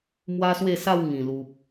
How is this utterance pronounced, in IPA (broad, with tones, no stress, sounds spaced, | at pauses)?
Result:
m w a˦ s w e˥˧ s a˥˧ w ŋ ĩ˨˩ l u˨ p̚